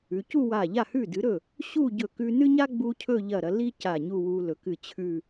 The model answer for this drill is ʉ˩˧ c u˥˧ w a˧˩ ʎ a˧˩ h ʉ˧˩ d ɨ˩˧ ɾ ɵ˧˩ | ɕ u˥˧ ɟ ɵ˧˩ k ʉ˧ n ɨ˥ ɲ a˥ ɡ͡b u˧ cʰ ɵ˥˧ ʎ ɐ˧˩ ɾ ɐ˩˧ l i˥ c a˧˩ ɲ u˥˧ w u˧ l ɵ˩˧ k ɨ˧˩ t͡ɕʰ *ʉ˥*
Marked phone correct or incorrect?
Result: incorrect: ʉ˥˧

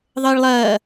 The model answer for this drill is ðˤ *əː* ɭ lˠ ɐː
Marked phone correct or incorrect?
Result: correct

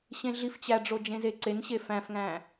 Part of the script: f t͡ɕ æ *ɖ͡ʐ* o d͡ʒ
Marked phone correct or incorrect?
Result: correct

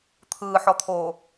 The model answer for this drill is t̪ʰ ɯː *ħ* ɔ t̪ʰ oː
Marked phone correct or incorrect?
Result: correct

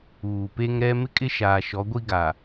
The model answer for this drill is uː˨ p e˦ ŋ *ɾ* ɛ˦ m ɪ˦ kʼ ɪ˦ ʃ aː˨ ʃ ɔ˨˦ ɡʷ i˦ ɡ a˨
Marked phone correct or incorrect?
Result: correct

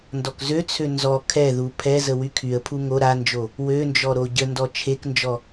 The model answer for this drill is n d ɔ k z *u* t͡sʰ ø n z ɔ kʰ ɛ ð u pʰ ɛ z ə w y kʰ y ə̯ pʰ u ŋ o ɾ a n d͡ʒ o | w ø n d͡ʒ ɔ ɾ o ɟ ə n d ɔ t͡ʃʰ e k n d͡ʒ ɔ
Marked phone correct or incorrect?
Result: incorrect: ø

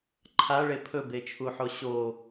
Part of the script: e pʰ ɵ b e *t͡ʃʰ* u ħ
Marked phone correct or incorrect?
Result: correct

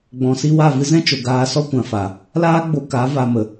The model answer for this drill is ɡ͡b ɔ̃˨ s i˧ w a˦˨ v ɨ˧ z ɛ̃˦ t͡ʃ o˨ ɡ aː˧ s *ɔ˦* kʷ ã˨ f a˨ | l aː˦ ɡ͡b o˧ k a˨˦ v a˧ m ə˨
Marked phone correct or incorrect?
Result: correct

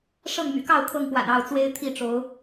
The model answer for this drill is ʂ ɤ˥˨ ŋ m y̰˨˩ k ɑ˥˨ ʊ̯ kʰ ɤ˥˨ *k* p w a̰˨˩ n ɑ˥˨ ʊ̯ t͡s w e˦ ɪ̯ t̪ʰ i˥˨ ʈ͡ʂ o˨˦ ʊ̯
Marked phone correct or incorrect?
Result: incorrect: ŋ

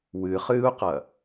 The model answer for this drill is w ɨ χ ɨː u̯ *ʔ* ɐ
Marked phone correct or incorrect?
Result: incorrect: q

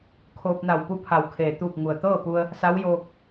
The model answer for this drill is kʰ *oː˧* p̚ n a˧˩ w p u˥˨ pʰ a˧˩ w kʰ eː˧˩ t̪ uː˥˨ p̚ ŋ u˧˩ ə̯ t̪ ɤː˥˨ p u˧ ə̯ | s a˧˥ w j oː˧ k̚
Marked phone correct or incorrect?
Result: correct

